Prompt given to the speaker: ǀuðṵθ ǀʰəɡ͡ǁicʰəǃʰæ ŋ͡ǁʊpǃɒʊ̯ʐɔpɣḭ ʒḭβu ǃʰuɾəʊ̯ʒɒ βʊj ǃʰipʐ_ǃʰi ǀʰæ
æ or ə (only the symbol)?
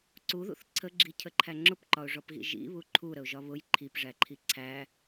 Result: æ